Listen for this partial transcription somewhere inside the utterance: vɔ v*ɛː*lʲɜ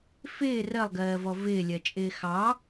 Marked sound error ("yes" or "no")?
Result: yes